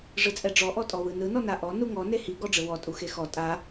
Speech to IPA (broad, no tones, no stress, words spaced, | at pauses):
ʐɯt͡sʼɛɖ͡ʐɔ ʔɔtʼɔwɯnɯ nɔnaʔɔ nuŋɔ nehi ɡɔɖ͡ʐɯwɔ tʼuxexɔ tʼa